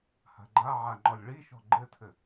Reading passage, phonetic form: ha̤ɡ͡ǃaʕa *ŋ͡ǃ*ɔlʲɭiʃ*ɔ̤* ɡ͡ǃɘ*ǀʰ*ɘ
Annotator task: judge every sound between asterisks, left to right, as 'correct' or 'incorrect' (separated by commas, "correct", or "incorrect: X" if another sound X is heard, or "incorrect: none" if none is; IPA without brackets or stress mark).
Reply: correct, correct, incorrect: tʰ